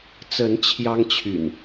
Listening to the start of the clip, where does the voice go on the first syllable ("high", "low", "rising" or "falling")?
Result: rising